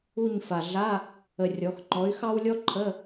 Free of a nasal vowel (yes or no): yes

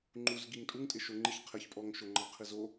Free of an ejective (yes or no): no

